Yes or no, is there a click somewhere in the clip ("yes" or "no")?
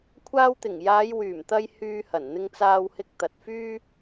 no